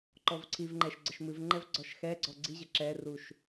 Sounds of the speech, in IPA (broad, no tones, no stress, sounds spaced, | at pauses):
ǃ ɔ v ǀʰ i v ŋ͡ǃ ɛ ʃ ɡ͡ǀ ə ʃ m ɨ v ŋ͡ǃ ɛ v ɡ͡ǀ ɔ ʃ x ɛ ɡ͡ǀ ɔ ɡ͡ǀ i ʑ ə ǁ ɛ r u ʃ